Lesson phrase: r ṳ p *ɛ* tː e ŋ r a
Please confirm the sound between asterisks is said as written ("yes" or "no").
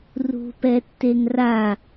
yes